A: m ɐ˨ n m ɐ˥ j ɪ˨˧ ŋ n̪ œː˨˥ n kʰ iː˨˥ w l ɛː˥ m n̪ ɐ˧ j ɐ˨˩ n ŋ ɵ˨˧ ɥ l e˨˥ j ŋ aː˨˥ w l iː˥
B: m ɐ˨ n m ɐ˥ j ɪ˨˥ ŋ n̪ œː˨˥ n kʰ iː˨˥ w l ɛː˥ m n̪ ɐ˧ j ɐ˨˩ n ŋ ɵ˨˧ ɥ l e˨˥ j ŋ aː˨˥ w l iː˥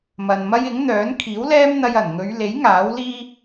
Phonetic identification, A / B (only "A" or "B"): B